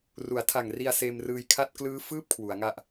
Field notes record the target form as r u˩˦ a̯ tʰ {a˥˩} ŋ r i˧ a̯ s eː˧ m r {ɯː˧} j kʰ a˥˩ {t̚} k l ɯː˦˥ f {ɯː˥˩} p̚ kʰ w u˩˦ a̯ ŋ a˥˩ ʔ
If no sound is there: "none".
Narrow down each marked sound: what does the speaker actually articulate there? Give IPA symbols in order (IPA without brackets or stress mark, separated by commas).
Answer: a˨˩, ɯː˧, t̚, ɯː˥˩